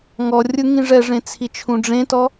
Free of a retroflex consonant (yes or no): no